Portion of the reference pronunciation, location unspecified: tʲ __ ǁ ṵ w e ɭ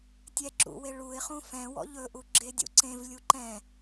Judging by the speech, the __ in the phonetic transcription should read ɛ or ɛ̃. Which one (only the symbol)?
ɛ